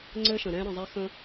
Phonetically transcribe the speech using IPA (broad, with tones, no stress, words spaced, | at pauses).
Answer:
ŋ͡ǀɘ˦ʃə̃˨ ɾɛ̃˧ɾə̃˨zˤɛ˧xə̃˧